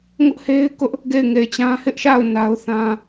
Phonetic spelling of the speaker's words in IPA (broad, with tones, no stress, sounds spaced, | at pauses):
ŋ ʊ˦ ʔ h e˦ ɪ̯ k ʊ˦ ʔ | ɡ e˦˨ ɪ̯ ŋ e˨ ɪ̯ t͡ɕ ã˦ h ɪ˦ ʔ ʃ a˦˨ ʊ̯ n a˦ ʊ̯ θ ã˦